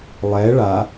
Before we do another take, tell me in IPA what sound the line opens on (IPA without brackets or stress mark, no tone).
lˠ